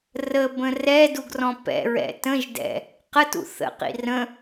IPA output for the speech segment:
r ə b ə̃ r ɛ d u ɡ r ɔ̃ p ɛ̰ ɹ ɛ̰ t ə̃ ʒ d ɛ̰ | q ə t ṵ θ ə̰ q ḭ r ə̃

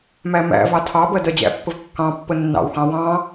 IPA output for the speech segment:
m æ m æ̰ v ɑ tʰ ɑ b ɜ d ɜ d͡ʑ æ̰ pː ə v kː ɑ̃ pː ə nː ɑ̰ w x ɑ̃ w ɑ̃

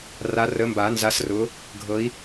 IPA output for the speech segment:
r a˨˦ r ə˨˦ m b a˨˩˦ n z a˨˦ s r ʊ˨˦ | ɡʱ ɤ˨˦ i̯

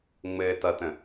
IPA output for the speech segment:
ŋ͡m ɘː t ʌ t ə̃

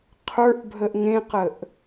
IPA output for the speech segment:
qʰ ə˞ ʔ bʱ ə ʔ ŋ ẽ q ə ʔ

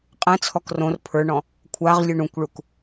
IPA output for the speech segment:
qʼ ɛ̃ t͡sʰ ɔ k r õ r pʰ ə˞ ɳ ɔ̃ | kʷʰ a ʁ lʲ u ɳ ũ kʷ ɭ u k

